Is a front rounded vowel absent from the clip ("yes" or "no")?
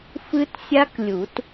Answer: yes